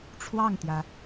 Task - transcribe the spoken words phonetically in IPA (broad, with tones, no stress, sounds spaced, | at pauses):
ʈ͡ʂʰ w ɑ˥˩ ŋ t̪ j ä˩